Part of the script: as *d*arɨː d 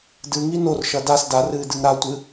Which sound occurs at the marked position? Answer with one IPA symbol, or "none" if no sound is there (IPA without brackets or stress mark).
d